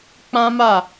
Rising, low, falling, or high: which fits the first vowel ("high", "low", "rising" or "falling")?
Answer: high